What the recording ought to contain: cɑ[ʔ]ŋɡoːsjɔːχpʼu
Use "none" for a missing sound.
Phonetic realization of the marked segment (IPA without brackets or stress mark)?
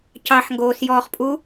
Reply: ħ